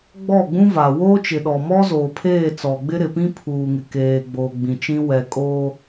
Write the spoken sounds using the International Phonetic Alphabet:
ɡ͡bɔ˦˨ɡ͡bũ˦va˨ woː˦t͡ʃɪ˨ɗɔ˨mɔ˦ zoː˨pʰeː˦˨ t͡sɔ˨ɡ͡bɪ˦ ɾɪ˨pĩ˦ pʰuː˨ŋɪ˨ keː˨ɡ͡boː˨ ɡ͡bĩ˨t͡ʃĩ˦ wɛ˨kʼoː˦

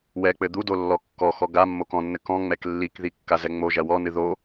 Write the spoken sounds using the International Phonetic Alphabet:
wɛ k͡pɘd̪udo lːɔkːɔxɔ ɡa mːokɔ̃nːɘ kɔ̃ ŋ͡mɛklːikði kːazɛŋ͡mo ʒɐwɔnɨ ðo

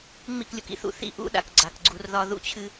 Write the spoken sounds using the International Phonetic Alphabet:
ŋ͡mḭ˦˨klʲṵ˨kḭ˦θṵ˨ θḭ˦ ʔṵ˦ɗa̰˨k ɡ͡ǀa˨kɡ͡ǀu˦r ðɒ˦ ðṵ˦t͡ɕʰɨ˦

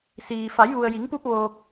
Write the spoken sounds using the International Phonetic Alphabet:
siː˩ fa˩˧jʋu˩ə̯ji˩˧ŋpu˧p̚ ʋoː˧k̚

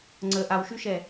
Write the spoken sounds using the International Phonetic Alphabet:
ŋ͡ǀə ʔawʃyʃɛ

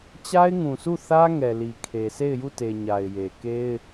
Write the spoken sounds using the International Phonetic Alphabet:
t͡ɕa˦ɪ̯ŋũ˨sʰu˦˨θä˦ ŋɛ˨li˨ kʰe˨ se˦˨ɪ̯ju˦˨te˨ ɲa˨ɪ̯je˨ ke˦ɪ̯

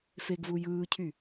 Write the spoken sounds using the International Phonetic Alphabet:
feɡvu jɯːcʰy

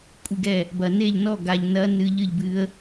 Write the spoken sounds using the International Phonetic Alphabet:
kʷʼi˥˩ɡɛ˥˩ | bɐ˨ ne˥˩ʎnɔ˥˩ ɡa˨ʎnɐ˧˥ nɨ˧˥ʎɨ˥˩ʎbɨ˧˥ə̯

